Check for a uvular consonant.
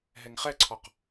present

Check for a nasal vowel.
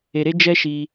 absent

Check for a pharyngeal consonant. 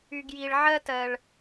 present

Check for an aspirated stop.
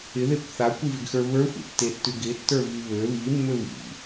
absent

